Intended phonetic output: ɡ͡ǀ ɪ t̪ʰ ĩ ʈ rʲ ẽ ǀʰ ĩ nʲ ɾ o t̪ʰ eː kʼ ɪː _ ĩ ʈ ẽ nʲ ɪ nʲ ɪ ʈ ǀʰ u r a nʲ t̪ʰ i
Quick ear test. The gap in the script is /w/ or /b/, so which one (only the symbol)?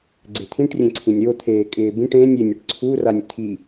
b